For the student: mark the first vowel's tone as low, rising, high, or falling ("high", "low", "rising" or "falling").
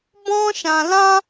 high